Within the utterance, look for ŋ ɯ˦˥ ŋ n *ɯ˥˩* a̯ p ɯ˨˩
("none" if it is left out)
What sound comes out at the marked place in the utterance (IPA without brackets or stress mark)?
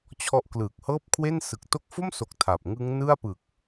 ɯ˥˩